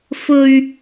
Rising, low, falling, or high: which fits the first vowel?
high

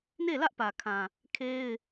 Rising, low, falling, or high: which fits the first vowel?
falling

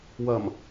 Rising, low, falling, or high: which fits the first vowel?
low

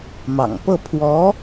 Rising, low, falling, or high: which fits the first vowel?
low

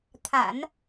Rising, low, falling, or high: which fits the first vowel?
low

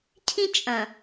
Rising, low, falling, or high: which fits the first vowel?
high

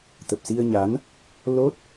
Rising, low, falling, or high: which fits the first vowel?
low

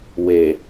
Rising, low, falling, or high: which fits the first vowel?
low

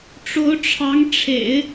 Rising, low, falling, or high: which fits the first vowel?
rising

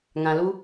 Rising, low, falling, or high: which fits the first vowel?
low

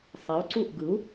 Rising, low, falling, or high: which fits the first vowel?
rising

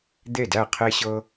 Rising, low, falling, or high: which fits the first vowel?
falling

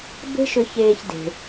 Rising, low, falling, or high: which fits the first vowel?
high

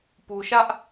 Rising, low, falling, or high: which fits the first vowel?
low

